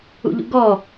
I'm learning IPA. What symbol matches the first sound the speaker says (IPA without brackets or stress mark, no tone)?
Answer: ṵ